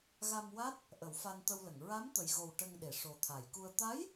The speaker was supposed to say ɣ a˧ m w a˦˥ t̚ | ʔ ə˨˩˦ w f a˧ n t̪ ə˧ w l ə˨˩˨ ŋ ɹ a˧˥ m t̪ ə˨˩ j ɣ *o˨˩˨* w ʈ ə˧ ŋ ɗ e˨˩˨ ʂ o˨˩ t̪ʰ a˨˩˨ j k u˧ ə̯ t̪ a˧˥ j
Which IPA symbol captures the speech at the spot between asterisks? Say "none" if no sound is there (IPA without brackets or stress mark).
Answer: o˨˩